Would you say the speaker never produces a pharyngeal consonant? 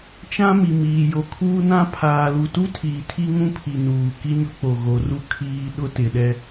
yes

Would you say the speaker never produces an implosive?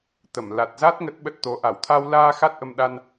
no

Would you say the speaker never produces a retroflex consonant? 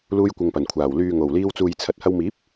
yes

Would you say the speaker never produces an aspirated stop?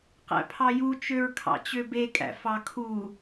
no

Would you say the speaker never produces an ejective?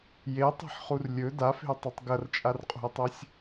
no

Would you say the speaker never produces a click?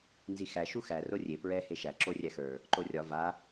no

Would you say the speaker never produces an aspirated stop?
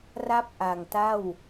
yes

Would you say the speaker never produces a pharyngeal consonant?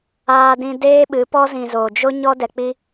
yes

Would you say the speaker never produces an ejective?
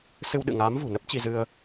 yes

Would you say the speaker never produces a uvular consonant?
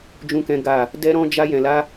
yes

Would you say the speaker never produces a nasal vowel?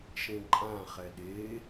no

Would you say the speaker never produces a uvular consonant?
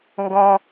yes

